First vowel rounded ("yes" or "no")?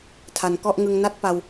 no